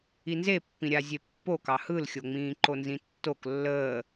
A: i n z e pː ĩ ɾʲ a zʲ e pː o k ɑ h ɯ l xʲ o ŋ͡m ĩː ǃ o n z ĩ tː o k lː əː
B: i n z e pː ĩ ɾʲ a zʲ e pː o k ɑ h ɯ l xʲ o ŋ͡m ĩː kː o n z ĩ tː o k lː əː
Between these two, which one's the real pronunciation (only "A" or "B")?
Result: A